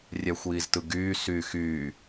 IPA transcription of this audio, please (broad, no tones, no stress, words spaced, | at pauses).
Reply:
rʲæxʷiːztɯɡyː syːxyː